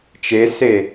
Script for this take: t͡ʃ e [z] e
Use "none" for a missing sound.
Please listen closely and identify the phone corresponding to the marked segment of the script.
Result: s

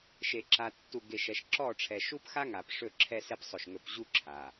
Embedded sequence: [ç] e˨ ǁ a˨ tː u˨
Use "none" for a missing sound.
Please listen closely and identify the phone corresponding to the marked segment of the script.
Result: ʃ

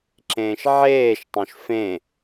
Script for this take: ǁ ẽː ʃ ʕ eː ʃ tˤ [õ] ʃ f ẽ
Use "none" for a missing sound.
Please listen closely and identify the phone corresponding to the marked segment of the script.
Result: õ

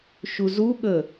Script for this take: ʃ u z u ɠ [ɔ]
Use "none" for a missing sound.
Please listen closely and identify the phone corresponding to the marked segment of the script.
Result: ə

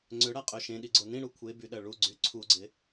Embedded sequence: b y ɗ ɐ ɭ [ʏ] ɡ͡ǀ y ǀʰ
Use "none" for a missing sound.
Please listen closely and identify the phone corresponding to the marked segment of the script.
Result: u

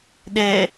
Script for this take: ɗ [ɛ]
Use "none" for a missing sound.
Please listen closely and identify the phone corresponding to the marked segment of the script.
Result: ɛ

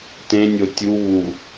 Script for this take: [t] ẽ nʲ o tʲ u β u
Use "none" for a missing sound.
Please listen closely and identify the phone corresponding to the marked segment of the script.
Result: t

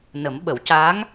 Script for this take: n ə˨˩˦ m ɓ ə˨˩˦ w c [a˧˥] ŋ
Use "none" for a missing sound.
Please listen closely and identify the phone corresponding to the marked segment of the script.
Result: a˧˥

